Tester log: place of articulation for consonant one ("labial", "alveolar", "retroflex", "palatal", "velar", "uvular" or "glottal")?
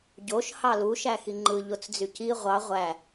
palatal